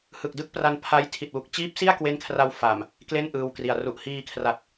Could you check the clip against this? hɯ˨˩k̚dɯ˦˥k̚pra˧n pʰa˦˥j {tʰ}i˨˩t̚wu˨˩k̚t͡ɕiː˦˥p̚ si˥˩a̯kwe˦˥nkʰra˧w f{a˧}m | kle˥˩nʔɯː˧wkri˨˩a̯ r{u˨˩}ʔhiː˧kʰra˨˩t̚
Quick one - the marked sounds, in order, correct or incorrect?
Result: correct, incorrect, correct

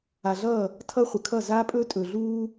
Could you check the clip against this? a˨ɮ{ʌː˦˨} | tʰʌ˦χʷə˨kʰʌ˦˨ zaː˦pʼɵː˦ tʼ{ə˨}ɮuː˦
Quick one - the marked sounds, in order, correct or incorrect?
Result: correct, incorrect

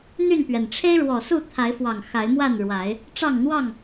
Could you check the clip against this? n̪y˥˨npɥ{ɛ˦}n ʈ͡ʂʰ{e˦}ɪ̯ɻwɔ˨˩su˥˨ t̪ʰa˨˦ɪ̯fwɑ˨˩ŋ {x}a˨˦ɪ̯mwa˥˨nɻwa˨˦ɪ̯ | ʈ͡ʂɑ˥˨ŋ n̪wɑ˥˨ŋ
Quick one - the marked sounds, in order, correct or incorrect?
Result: incorrect, correct, correct

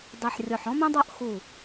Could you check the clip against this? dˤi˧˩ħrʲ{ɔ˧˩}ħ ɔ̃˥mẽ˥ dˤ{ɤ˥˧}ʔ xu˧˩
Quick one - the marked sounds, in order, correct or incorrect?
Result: correct, correct

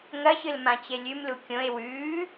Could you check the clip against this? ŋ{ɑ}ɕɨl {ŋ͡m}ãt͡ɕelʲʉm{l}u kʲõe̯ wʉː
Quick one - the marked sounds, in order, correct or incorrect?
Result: incorrect, incorrect, correct

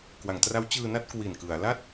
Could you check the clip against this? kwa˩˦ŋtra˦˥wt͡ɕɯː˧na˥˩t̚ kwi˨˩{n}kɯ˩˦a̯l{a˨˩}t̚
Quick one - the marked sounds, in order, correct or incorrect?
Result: correct, incorrect

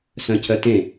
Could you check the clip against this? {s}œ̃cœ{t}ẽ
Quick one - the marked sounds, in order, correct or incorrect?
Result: correct, correct

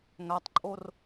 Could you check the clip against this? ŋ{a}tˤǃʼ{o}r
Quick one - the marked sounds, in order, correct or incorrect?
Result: correct, correct

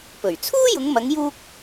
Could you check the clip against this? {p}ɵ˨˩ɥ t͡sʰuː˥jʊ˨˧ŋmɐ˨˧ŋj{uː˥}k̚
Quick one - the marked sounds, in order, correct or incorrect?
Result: correct, incorrect

